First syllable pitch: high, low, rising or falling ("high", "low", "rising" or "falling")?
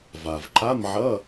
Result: low